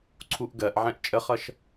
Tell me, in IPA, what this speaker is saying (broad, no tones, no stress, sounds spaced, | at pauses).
ǀʰ u ʔ ɡ ɜ ʔ ʕ ɛ̃ ʔ t͡ʃʼ ə χ ʌ ʃ